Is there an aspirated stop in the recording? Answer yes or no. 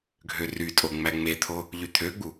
yes